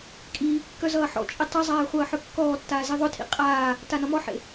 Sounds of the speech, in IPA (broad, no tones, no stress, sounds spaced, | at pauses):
kʼ iː kː œ z ʌː ħ ɔ̰ t͡ʃʼ i tˤ ʌ zˤ aː χʷ ʌː ħ œ kː ɔː tː aː z i ðˤ ʊ tʰ ḭ qʼ aː | t a n ʌ m ɔ ħ ḛ